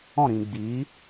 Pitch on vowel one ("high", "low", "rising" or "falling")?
falling